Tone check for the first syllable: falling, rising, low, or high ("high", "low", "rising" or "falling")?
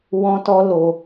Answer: high